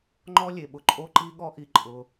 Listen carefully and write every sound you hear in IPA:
ŋ͡ǃ ɔ˦ lʲ e˨ ɓ ʊ˨ ǃʼ o˦ ǃ i˦ ɠ ɔ˦ ʔ i˧ ǃʼ ʊ˧

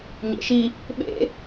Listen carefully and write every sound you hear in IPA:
ɲ ḛ ʃ i | ɓ ḛ

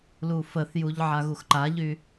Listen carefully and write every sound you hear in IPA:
l u f ə θ j u ʎ ʕ a ɣ u x ǃ a ʎ y

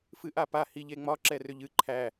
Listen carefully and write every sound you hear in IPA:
f ɨ ʔ a p a h i ʎ e ŋ͡m ɒ ǁ ɛ r ʏ ʎ ɨ ǃʰ æ

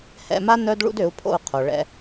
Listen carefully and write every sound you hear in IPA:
h ɛ̰˧ m a˦ n œ˦ d ɭ ṵ˦ d ø˨˦ u̯ pʰ o̰˦˨ u̯ qʰ o˨ ɭ ɛ̰˧

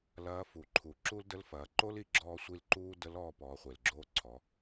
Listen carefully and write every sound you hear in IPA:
l ɐː˧˥ f u˩ ǃʰ u˩˧ ǁ u˥ l d ə˧˥ l f ɐː˩˧ ǃ o˥ l i˧ ɡ͡ǁ ɔː˧ sʷ i˧ l ǃ uː˥ d ə˧˥ l ɔː˧ p ɔː˩˧ χʷ e˩ l ɡ͡ǁ oː˧ ǀʰ ɔ˩˧

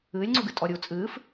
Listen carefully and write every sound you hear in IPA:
ɨː lʲ ŋ͡ǀ u ɡ ɨ tʼ ɔ ɾʲ u t͡sʼ ɨː f

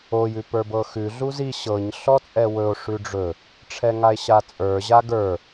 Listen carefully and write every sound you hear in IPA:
o j ʉ p ə˞ b ɤ x ʉ ɮ u z i ɕ ɤ ɲ ɬ ɔ t͡sʼ ɛ w ɵ o̯ ʂ ʉ ɖ͡ʐ ɵ | ʈ͡ʂʰ ɛ ŋ a e̯ ɕ a t͡sʼ ə˞ ʑ a ɡ ə˞

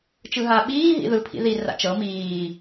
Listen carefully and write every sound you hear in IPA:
t͡ʃ ɯ ɦ a ɓ iː ɦ ḭ ð ɯ pʰ ḭ ð i r a̰ t͡ʃ ɤ m iː

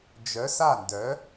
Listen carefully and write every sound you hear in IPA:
d͡ʒ œ˩˧ s a˧˩ n d œ˩˧

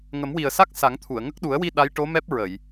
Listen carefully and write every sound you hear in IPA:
ŋ ə˨˩˦ m w i˨˩ ə̯ s a˦˥ k̚ s a˨˩˦ ŋ t̪ʰ u˨˩˨ ə̯ ŋ ə˦˥ k̚ ɗ u˨˩˦ ə̯ w i˧ ɗ a˧˥ j ʈ o˧˥ m ɛ˦˥ p̚ ɹ ə˨˩˨ j

